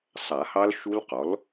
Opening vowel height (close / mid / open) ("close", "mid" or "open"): open